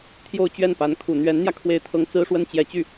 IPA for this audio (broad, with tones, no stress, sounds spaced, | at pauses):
t̪ʰ j o˥˧ ʊ̯ t͡ɕ ɥ ɛ˥˩ n p a˧˥ n kʰ u˨˩ n̪ ɥ ɛ˧˥ n n̪ j ä˧ kʰ w e˥˩ ɪ̯ t̪ʰ ɤ˥ ŋ t͡s ɹ̩˥ ʂ w ə˥ n t͡ɕ j ɛ˧˥ t͡ɕ y˥˩